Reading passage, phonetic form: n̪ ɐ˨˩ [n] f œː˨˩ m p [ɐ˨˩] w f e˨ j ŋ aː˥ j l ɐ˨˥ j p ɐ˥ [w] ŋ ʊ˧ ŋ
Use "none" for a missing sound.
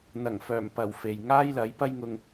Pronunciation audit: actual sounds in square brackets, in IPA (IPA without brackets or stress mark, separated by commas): ŋ, ɐ˨˩, j